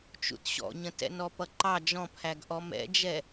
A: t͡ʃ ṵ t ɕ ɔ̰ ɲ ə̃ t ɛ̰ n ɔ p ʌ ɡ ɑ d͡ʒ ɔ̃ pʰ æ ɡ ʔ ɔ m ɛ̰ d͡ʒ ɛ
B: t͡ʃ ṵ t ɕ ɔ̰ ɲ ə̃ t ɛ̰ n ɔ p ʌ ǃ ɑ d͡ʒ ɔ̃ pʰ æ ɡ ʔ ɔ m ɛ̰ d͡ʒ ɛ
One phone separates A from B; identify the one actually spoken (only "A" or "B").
B